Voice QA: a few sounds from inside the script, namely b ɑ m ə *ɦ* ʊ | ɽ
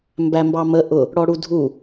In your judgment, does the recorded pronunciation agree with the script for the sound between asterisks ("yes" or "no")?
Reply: no